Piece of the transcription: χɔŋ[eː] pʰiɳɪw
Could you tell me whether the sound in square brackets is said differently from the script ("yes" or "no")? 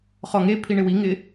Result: yes